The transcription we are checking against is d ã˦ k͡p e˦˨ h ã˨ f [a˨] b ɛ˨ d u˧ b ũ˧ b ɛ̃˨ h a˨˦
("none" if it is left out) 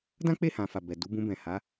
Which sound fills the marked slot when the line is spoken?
a˨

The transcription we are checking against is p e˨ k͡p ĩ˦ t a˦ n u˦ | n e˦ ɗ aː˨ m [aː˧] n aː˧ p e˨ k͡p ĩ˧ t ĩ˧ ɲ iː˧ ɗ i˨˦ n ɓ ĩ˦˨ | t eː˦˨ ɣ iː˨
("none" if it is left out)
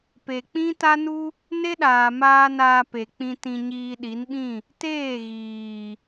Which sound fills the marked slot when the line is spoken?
aː˧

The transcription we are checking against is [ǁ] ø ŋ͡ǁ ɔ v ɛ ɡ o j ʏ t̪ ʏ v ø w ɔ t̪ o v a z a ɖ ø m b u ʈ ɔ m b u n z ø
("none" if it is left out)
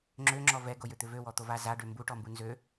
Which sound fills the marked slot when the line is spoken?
ŋ͡ǁ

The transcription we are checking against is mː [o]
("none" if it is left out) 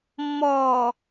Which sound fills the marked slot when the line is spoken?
ɔ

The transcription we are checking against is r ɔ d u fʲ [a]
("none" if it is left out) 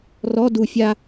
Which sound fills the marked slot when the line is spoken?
a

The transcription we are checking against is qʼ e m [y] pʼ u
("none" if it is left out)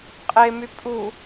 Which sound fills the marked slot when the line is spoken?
y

